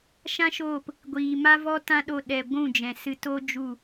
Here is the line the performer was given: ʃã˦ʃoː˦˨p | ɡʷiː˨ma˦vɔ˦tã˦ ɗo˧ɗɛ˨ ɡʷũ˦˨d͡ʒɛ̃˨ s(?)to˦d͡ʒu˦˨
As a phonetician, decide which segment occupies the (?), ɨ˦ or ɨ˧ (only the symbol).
ɨ˧